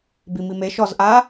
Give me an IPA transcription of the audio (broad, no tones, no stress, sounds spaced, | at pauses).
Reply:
b i m i m e ʃ ɔ z ʔ a